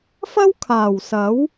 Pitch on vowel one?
high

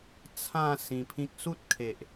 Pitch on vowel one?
falling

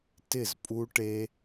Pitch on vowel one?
falling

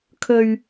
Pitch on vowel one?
low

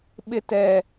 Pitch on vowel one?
high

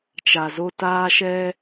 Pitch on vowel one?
low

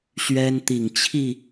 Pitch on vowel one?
high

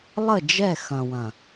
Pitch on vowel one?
falling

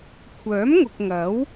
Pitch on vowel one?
rising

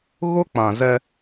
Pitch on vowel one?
high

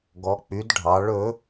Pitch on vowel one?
rising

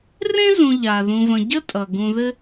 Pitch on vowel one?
high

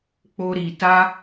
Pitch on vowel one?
high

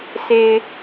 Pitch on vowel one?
low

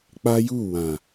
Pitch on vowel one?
high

